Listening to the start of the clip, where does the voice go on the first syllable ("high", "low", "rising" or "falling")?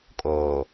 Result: low